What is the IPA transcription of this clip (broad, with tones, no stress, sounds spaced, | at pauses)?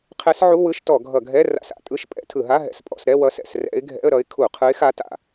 qʰ ɛ˧˥ s ʕ u˧˥˧ w ɯ˧˥˧ ʃ t ɔ˧˩˧ ɡʱ ʌ˧˩˧ ɡʱ ɛ˧˥˧ r a̰˧˩˧ s a̰˧˩˧ tʼ ɯ˧˥˧ ʃ pʼ ɛ̰˧˥˧ tʰ ɯ˧˩˧ ɦ a˧˥˧ ɦ ɛ̰˧˩˧ s pʼ ɔ̰˧˥˧ s ɾ ɛ˧˥˧ w ʌ˧˥ s ɛ̰˧˩˧ s r ɛ̰˧˥ ɪ̯ ɡʱ ɛ̰˧˥˧ ə̯ ɾ ʌ˧˥ ɪ̯ kʰ u˧˩˧ qʰ ɯ˧˥ ɪ̯ x a˧˥ t a̰˧˩˧